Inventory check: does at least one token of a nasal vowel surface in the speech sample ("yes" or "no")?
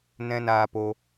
yes